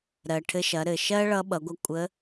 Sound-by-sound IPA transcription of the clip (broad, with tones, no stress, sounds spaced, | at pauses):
ɾ ɜ˩ ʈʰ ɘ˧ ʃ ɐ˩˧ ɾ ɘ˩ ʃ ɜ˥ ɭ ʌ˧˥ ɓ ʌ˩˧ ɡʷ ʌ˧ kʷʼ ə˧˥